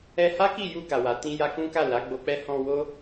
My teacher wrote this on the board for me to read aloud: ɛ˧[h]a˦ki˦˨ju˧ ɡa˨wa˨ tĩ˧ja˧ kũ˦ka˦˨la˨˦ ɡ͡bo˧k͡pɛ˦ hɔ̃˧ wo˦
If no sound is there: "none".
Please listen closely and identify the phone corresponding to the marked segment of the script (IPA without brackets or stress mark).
h